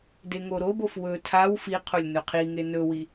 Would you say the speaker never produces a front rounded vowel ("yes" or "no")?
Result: yes